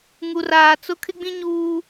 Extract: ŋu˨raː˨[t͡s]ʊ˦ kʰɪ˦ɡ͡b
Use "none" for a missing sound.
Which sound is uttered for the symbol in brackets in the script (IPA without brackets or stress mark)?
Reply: t͡s